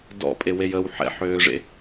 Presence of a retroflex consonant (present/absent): present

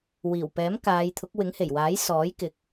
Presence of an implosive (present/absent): absent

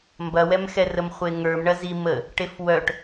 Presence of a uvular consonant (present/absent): present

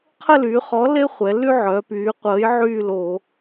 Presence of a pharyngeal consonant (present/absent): present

